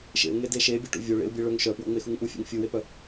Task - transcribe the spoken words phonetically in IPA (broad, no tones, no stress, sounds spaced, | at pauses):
ʃ ḛ ʊ̯ ŋ e d e ʃ e bʲ e ʈ ṵ vʲ o ɭ ḛ ʊ̯ bʲ e ɭ œ ŋ ʃ œ p w o̰ ŋ͡m e x u ŋ ʔ u fʲ ḛ ŋ fʲ u w e p œ